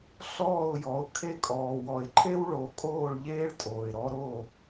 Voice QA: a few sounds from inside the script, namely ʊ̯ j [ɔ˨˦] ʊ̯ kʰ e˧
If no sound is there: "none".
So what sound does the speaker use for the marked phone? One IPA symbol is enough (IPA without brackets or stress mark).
ɔ˨˦